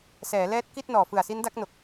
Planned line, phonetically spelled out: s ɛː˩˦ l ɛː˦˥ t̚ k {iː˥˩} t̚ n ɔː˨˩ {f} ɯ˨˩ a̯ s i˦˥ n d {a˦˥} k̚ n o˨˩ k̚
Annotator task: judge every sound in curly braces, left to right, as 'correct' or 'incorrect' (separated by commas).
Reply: incorrect, correct, correct